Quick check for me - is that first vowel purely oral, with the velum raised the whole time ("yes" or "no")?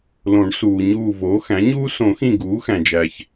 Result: no